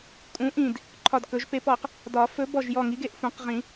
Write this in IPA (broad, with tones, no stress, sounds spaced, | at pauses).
kʼ ũ˨˥ ʔ ĩ˧˩ d | ǃʰ ɒ˧˩ d k ɵ˨˩˦ ʒ p e˨˥ p ɔ˨˩˦ q | d ɒ˨˩˦ f ɵ˨˥ b ɔ˧˩ ʒ j ɔ˧˩ ŋ i˨˥ ɡ e˧˩ ʔ f ũ˨˩˦ q ʁ ĩ˨˩˦